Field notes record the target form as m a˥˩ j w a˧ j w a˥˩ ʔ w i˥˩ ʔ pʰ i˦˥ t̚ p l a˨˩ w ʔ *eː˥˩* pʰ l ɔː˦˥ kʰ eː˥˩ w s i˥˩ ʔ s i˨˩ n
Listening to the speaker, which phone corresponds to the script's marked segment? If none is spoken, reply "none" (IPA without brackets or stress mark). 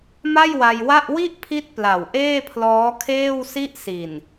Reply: eː˥˩